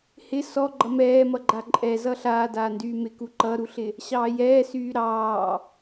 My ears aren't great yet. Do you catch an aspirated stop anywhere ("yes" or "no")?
no